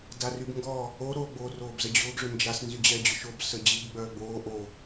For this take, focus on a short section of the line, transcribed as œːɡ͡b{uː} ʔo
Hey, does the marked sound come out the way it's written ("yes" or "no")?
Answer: no